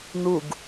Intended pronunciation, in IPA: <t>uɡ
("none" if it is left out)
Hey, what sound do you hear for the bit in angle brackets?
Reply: n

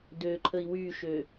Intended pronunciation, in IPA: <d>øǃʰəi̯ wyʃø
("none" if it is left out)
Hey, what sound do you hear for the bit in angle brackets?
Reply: d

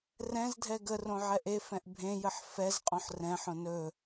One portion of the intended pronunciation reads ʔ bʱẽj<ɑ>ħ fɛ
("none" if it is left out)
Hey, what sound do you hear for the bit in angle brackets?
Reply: ə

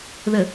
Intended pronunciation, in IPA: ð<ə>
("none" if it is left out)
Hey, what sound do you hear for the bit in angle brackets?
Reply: ə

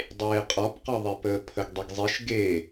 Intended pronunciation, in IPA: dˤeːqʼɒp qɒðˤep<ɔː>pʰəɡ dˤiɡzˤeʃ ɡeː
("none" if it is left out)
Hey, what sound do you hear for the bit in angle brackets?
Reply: əː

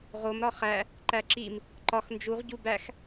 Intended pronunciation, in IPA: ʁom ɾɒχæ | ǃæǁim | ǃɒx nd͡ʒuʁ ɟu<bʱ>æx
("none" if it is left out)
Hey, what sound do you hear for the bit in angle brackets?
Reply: b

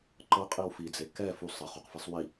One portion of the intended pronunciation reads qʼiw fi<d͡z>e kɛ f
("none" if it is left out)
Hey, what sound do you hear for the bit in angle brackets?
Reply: d͡z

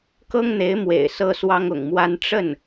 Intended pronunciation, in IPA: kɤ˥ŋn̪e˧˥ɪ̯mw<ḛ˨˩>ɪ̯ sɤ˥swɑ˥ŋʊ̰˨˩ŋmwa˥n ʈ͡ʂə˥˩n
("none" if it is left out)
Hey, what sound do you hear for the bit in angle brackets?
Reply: ḛ˨˩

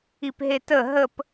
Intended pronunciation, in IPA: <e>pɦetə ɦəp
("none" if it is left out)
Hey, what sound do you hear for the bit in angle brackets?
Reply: i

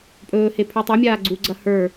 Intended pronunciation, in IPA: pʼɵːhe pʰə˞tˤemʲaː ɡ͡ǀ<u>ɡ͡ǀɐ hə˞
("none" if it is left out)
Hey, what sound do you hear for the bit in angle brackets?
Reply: u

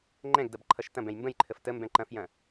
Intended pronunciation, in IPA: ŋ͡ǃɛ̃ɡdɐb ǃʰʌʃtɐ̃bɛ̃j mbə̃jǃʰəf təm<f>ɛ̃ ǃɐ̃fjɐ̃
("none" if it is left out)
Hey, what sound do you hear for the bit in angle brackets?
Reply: b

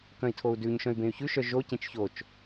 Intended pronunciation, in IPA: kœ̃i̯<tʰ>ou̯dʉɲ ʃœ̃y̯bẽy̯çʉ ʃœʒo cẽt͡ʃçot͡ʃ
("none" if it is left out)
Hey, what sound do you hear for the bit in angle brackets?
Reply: tʰ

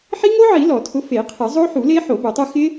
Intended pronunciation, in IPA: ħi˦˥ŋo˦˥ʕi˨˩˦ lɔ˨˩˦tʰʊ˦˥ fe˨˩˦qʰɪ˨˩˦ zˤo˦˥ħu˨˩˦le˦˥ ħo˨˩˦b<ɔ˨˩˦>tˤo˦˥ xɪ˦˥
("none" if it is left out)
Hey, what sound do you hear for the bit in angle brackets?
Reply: o˨˩˦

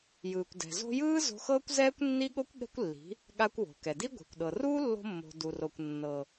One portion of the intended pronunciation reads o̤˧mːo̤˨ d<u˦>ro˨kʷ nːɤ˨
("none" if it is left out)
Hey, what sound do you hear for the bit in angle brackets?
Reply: u˨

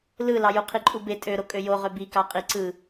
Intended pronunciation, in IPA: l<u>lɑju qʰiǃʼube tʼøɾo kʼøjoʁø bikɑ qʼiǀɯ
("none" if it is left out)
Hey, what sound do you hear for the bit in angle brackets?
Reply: ɯ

